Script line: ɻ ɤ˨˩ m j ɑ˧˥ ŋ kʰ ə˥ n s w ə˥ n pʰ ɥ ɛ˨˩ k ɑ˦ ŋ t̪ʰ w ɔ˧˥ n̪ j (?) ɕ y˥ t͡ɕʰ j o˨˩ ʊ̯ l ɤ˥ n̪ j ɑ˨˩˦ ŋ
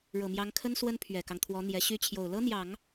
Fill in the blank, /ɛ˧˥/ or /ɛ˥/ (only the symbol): ɛ˧˥